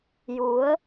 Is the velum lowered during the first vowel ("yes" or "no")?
no